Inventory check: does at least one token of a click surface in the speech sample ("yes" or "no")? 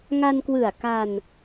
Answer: no